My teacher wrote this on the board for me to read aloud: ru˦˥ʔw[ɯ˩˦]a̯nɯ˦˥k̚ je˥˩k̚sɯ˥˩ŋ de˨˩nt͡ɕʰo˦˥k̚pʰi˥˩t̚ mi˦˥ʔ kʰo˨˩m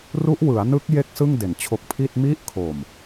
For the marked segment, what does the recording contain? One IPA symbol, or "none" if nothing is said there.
ɯ˩˦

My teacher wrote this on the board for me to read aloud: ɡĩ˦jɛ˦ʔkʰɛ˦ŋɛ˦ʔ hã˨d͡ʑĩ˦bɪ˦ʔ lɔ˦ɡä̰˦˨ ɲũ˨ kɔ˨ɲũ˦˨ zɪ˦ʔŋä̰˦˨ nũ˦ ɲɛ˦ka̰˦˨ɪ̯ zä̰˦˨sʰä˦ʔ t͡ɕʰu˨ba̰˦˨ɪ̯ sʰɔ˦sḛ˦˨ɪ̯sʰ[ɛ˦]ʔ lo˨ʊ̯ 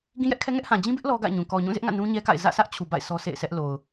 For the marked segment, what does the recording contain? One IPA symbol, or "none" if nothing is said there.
ɛ˦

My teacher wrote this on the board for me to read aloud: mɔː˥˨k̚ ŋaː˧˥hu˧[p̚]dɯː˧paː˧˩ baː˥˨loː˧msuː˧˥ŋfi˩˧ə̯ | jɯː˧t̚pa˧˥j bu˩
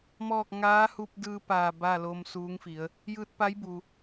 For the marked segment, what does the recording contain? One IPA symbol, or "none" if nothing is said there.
p̚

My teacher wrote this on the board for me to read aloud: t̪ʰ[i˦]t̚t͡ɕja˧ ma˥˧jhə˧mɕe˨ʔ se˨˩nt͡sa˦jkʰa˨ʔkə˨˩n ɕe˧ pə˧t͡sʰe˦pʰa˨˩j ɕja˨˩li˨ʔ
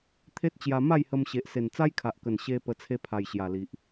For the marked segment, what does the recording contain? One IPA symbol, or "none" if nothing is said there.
e˦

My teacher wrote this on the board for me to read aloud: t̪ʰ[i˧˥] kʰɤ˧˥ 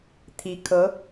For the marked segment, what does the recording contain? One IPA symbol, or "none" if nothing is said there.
i˧˥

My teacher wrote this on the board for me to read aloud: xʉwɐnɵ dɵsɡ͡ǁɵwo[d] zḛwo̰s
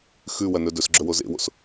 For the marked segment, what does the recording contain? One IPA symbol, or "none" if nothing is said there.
none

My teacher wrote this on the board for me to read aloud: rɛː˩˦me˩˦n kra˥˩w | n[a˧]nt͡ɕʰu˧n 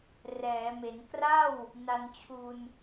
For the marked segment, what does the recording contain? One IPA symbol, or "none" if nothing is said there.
a˧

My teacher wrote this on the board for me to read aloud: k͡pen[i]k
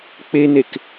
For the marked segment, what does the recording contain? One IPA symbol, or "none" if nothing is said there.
e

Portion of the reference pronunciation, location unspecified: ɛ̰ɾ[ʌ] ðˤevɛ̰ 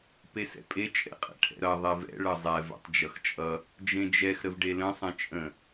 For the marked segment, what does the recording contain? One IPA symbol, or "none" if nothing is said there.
ʌ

